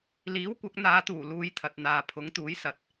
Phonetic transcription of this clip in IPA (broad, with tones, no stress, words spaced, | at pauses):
liː˨˥wkʷɐ˨˥k̚n̪aː˨˧t̪uː˨˩ luː˨˧j t̪ʰɐ˨t̚n̪aː˨ pʰʊ˨˥ŋ t̪uː˨˥j sɐ˨t̚